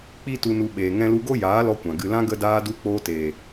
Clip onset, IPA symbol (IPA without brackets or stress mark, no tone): k͡p